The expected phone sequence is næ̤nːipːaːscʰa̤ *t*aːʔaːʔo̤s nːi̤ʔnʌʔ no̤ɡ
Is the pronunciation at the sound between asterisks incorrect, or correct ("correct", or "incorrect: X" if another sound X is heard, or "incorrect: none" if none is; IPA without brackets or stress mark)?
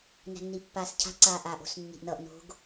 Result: incorrect: ǀ